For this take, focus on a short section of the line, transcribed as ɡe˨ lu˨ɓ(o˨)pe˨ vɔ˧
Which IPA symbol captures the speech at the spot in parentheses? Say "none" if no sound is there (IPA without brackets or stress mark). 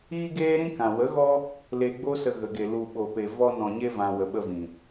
o˨